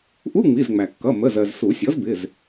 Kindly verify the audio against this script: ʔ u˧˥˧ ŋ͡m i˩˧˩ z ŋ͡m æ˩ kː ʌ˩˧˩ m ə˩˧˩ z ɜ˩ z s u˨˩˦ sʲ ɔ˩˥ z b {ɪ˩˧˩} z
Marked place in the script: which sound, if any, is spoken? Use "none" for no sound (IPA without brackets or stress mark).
ɪ˩˧˩